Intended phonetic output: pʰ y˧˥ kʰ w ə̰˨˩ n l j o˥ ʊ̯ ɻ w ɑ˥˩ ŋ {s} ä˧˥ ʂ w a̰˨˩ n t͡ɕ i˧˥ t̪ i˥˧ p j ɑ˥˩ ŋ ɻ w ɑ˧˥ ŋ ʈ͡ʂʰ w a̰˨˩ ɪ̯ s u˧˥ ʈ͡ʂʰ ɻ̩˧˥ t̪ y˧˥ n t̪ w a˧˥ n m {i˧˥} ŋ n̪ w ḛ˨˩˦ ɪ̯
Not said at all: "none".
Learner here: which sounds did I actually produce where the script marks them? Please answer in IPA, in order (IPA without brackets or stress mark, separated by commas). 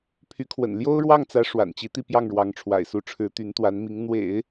t͡s, i˧˥